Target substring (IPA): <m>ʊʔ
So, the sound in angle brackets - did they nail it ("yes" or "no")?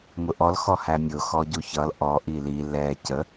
yes